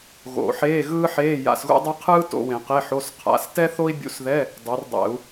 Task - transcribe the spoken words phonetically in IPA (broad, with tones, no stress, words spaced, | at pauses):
ɣo̰˨˩˦ ħeː˧˥˧ɣɯː˥ħeː˧˥˧ ja̰˧˥˧sɣṵ˥dˤɯ˥ qʰɯː˥ to̰˧˥˧wẽ˨˩˦ qe˧˥˧ħo˧˥˧sqʰa̰˧˥˧s tɛ˥ θo˥i̯bʲṵ˧˥˧sðɛ˧˥˧ | dˤe˨˦rdˤɛ̰˨˩˦u̯